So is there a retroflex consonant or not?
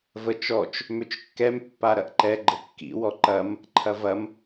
no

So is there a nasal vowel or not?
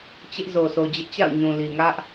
yes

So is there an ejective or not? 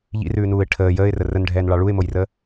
no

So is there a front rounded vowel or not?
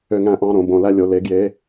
yes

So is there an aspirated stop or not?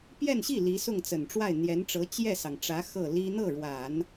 no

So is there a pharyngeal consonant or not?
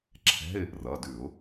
no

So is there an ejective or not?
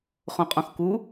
yes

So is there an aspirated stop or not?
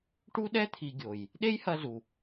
yes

